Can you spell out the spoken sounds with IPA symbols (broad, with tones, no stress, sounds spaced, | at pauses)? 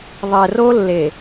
ðˤ ɛ˨ r o˦ lː e˨